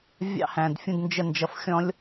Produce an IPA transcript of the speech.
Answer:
vʲ ɑ̰˦ h æ̃˨ d fʲ ũ˧ d n d͡ʒ ə˧ n d͡ʒ ʌ˨˦ f xʲ ɔ̃˦ lʲ

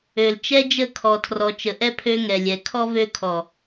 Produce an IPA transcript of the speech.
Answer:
ø˨ l t͡ʃ ɛ˦ d͡ʒ ə˦˨ kʰ ɔ˨ tʰ r ɔ˨ t͡ʃ ə˨ ʔ ɛ˦ pʰ ø˦ ŋ ɛ˨ lʲ ɛ˨ kʰ ɔ˦ v ø˦ kʰ ɔ˨

